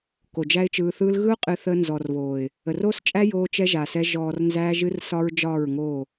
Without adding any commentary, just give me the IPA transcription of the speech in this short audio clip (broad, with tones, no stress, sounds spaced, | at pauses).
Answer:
k o˨ d͡ʒ æ˦ ɪ̯ t͡ʃ ɯː˧ θ ɯː˦ l ɣ ɯ˦ ʊ̯ qʼ ɨ˧ θ əː˧ n z ɔ˨ r β oː˨ ɪ̯ | ə˨ r oː˦ s t͡ʃʼ æ˦ j oː˧ t͡ʃ ɛ˧ ʒ a˨ s ɛ˧ ʒ ɔː˨ r n z æː˧ ʒ ɨ˧ r s ɒ˧ ɹ d͡ʒ ɒː˦˨ ɹ ŋ oː˦˨